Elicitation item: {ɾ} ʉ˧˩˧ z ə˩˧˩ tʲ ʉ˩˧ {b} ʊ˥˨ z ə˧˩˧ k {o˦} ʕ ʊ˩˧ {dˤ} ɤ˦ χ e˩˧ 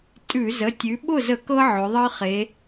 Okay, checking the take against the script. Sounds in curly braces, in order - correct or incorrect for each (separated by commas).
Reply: incorrect, incorrect, incorrect, incorrect